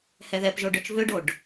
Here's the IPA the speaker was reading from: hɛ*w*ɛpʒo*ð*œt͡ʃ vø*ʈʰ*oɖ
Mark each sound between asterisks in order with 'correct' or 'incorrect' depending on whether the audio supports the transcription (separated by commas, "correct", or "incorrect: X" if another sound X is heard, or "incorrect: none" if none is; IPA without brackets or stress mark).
incorrect: ð, incorrect: ɖ, incorrect: ɖ